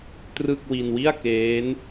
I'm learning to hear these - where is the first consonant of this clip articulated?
tongue tip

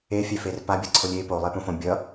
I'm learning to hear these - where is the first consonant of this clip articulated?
lips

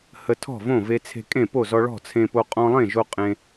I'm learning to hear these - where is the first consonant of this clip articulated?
throat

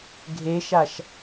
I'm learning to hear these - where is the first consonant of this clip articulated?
velum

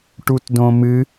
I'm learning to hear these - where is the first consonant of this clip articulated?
retroflex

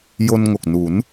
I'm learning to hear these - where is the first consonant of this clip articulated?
palate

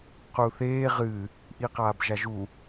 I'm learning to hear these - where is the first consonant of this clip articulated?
uvula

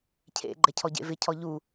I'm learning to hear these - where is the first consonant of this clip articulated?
palate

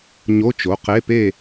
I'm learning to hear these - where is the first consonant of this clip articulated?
palate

